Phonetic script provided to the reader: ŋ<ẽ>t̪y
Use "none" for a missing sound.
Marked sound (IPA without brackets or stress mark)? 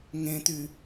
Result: ẽ